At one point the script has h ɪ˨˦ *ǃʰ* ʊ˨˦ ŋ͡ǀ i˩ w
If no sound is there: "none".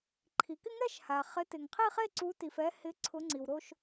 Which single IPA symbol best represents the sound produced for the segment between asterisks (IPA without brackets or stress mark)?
ǀʰ